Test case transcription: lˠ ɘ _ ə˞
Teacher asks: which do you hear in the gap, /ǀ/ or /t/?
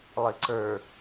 ǀ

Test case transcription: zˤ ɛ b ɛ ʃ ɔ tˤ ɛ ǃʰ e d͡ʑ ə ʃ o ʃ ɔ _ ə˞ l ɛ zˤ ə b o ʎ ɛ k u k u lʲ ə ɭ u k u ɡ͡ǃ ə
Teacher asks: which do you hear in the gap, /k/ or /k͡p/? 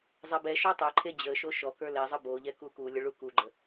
k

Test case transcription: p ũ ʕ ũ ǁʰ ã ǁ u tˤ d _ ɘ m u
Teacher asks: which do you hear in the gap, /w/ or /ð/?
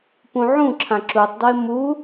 w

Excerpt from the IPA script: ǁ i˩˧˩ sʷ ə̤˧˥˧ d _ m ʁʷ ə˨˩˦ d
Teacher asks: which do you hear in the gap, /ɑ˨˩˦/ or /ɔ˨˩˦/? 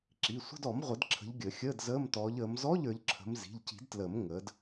ɔ˨˩˦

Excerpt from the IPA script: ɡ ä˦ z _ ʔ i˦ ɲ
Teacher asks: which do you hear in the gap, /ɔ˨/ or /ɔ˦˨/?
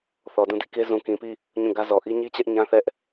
ɔ˨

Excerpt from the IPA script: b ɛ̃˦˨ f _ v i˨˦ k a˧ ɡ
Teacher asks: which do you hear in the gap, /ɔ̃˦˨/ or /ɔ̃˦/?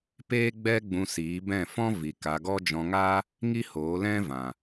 ɔ̃˦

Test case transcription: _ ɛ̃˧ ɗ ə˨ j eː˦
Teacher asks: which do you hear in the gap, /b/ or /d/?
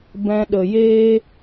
b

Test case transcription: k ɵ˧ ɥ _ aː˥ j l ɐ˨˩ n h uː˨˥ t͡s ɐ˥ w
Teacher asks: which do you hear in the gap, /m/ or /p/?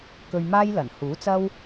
m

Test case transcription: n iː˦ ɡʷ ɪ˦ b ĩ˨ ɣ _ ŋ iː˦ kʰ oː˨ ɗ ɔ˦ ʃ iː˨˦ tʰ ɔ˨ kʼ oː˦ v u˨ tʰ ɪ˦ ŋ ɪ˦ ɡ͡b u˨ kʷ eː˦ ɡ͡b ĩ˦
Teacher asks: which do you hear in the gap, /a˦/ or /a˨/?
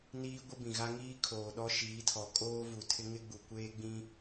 a˦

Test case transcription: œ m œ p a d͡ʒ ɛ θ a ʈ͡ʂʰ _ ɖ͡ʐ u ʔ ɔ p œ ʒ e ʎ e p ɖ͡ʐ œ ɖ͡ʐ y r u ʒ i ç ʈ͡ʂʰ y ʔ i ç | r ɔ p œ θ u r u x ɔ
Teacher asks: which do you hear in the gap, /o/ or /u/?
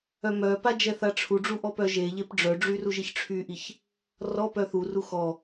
u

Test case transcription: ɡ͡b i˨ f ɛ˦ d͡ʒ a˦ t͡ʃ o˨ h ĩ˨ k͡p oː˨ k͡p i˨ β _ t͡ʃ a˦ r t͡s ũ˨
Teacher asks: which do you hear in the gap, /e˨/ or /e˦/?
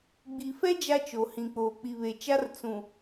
e˨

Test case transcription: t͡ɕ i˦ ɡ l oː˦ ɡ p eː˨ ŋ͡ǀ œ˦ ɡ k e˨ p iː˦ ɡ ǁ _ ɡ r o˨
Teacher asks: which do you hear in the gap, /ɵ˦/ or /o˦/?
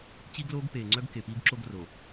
o˦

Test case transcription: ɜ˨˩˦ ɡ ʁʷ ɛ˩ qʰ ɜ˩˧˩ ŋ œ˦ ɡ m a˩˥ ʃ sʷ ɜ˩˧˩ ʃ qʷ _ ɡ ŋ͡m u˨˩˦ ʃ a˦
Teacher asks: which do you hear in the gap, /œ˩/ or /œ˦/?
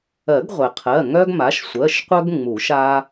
œ˦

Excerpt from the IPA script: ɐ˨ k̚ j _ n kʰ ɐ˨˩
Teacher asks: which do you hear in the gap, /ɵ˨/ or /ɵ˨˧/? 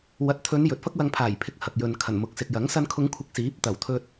ɵ˨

